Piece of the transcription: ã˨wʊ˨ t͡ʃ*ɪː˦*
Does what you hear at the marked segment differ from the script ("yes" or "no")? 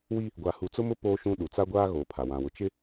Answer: yes